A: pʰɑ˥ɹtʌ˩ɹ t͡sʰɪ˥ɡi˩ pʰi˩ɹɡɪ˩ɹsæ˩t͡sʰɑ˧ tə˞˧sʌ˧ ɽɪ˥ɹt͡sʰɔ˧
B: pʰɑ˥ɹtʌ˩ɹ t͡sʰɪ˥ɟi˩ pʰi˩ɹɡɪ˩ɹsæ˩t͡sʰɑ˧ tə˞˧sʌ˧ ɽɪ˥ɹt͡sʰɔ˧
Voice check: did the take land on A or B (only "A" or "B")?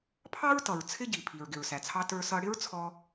B